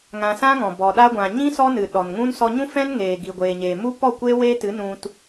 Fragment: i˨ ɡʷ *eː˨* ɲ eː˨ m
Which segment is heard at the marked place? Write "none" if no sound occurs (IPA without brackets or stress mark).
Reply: eː˨